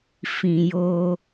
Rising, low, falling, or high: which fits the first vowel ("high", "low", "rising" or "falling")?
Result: low